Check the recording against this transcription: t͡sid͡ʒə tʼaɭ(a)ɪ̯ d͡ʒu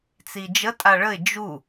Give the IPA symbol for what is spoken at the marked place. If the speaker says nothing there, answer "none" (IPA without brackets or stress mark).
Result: ə